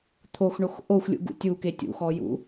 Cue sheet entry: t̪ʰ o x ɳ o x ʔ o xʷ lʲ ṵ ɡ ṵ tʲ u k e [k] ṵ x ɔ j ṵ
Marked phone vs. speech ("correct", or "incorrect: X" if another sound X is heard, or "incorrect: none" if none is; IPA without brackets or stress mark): incorrect: tʲ